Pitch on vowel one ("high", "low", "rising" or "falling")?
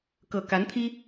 low